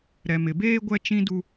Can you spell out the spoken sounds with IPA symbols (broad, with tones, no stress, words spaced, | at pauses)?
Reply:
ɾɛ˨mɪ˨beː˦ ɡʷɛ˦ t͡ʃĩ˦du˦